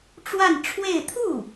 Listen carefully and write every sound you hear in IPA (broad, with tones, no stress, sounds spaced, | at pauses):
ʈ͡ʂ w a˥˧ n ʈ͡ʂʰ w e˥˧ ɪ̯ t̪ʰ u˥˩